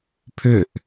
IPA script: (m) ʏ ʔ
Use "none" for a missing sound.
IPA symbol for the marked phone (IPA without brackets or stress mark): pʰ